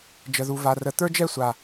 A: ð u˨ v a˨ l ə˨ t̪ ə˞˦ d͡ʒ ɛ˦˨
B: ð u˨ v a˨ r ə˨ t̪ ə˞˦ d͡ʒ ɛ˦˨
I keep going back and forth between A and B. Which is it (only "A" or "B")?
B